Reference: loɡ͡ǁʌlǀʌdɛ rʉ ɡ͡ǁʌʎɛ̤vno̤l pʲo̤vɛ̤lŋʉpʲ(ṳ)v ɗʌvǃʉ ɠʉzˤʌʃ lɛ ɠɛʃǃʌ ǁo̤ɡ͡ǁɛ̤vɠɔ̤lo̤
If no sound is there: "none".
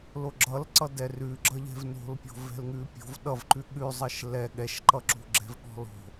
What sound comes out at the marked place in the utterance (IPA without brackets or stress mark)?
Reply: o̤